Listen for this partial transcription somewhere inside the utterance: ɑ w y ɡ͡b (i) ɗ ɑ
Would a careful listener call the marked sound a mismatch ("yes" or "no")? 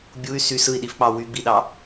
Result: no